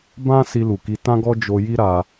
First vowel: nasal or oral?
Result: nasal